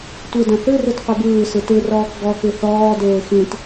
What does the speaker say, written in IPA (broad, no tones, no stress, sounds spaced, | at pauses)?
tʷ ɨ d ɐ̃ θ ɨ r ɯ t qʷ ɨ b ɯː s ɯ t ɯ r ɔː k ɡ ɔ k ɨ θ ɔː d eː x ĩ t